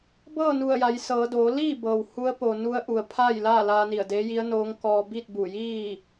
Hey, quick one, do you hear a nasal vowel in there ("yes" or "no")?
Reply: no